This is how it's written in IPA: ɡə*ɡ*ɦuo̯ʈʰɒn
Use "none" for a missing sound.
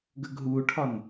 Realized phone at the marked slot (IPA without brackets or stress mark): ɡ